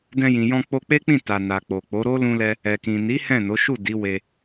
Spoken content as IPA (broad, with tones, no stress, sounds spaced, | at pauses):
d ɛ̃˧ j ĩ˨ j ɔ̃˧ k͡p o˧ k͡p e˦ k͡p ĩ˦˨ t a˧ n a˨ k͡p o˨ k͡p o˨˦ ɾ o˦ l ũ˦ l ɛ˦ | ɛ˨ k ĩ˨ n i˨˦ h ɛ̃˦˨ n o˨˦ ʃ u˦˨ d i˨˦ w e˧